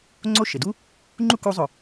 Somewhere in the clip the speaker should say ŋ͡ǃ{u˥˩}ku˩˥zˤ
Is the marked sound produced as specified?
yes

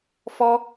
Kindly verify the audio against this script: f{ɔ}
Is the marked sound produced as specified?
yes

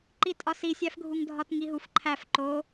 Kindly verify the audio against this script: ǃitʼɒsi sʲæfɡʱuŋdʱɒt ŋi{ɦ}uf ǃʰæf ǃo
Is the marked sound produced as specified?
yes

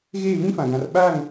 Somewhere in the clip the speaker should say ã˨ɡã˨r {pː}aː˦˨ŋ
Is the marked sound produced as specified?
no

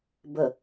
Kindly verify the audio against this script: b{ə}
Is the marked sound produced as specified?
yes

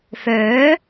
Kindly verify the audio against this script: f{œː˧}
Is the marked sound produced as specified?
no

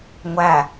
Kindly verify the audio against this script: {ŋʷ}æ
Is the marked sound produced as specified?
yes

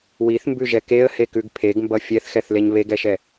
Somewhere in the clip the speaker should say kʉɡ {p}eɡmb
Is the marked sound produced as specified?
no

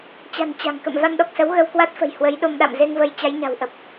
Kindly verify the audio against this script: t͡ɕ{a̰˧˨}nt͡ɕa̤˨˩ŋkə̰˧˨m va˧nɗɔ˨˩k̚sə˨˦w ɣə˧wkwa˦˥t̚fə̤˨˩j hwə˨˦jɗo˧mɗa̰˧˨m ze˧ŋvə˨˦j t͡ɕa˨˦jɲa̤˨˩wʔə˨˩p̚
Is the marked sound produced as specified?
no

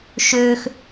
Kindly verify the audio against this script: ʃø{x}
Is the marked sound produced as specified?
yes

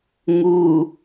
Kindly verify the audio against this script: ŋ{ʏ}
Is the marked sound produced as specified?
no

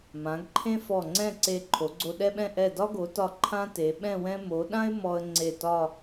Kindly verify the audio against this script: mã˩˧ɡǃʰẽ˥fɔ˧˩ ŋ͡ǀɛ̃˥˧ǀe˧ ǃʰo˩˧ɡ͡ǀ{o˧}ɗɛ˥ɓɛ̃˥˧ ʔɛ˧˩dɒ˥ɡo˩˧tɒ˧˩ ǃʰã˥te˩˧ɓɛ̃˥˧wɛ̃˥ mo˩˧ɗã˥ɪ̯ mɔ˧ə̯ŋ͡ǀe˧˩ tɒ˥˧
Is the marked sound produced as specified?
yes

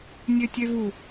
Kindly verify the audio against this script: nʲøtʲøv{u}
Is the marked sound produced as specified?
yes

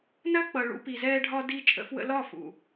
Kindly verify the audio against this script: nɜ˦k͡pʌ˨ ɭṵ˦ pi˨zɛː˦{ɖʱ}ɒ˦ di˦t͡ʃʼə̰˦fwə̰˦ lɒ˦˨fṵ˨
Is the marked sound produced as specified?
yes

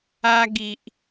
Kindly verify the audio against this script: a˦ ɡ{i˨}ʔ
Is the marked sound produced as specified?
yes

